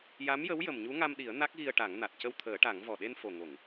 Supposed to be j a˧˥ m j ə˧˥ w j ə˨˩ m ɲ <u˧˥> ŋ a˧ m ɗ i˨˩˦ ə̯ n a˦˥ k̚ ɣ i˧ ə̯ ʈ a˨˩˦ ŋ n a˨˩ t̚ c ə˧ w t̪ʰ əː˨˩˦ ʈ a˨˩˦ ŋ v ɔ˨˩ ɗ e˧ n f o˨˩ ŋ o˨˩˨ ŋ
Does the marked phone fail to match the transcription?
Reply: no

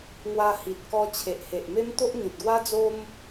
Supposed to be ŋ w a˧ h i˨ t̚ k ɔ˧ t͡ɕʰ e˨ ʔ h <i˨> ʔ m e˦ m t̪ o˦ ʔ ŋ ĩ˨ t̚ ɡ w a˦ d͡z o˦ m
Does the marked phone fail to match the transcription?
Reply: yes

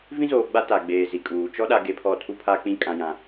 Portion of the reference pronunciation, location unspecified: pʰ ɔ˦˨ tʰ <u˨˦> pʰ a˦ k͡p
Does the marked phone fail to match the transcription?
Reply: yes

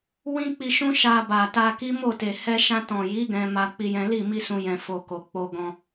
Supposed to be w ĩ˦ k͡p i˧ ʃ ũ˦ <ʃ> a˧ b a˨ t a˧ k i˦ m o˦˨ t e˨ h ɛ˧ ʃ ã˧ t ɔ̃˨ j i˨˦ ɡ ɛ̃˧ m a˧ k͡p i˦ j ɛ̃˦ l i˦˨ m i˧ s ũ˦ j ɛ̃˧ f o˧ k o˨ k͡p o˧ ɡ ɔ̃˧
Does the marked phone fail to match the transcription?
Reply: no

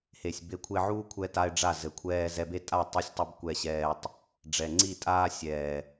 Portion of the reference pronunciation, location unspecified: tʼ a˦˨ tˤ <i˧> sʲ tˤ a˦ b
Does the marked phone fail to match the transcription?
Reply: no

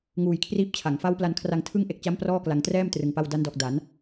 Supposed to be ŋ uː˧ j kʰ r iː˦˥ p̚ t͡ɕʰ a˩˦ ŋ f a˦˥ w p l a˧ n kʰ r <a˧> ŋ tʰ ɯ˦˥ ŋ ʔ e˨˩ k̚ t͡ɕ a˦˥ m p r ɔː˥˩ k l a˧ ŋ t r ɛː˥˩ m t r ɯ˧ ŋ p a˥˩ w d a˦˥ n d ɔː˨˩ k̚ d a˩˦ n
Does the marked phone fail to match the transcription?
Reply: no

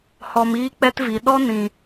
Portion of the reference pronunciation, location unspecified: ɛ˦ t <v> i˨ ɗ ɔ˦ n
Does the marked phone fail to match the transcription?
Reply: no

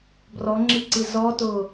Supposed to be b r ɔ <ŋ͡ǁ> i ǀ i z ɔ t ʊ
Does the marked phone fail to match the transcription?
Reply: no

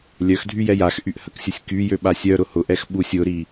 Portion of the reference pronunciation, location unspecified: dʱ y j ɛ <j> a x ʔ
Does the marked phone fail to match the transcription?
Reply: no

